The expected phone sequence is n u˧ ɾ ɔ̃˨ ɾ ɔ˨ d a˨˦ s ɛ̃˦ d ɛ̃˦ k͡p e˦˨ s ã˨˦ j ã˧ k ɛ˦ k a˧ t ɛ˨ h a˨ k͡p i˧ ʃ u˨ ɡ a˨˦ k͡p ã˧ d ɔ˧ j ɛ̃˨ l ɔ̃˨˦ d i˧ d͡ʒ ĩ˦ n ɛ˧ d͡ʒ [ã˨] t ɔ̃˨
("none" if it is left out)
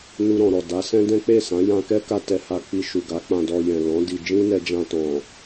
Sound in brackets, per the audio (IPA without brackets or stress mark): ã˧